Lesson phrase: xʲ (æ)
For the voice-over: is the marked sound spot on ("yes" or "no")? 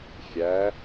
yes